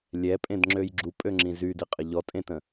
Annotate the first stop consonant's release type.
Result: ejective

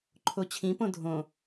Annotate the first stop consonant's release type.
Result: click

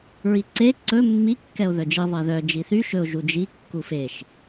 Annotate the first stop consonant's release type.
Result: click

